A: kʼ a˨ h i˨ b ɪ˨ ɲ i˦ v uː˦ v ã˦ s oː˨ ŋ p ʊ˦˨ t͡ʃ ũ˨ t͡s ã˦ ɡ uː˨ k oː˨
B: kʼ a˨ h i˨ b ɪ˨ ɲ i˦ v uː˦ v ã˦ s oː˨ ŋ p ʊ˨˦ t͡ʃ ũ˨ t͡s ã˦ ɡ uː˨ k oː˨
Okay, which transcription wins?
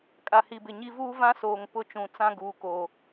A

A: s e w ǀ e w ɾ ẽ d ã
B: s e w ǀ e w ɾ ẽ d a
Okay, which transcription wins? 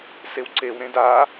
B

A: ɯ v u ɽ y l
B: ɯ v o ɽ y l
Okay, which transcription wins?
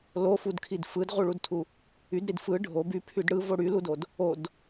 B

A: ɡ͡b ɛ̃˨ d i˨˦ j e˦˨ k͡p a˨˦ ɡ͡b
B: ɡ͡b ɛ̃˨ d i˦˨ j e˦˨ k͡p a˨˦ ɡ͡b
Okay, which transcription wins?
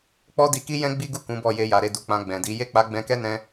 A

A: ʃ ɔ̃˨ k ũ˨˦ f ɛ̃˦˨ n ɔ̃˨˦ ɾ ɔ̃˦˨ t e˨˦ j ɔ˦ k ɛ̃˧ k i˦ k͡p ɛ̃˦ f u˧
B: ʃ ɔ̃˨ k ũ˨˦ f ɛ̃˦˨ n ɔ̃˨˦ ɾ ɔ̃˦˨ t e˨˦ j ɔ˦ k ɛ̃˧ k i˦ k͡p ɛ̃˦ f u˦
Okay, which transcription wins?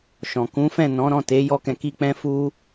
A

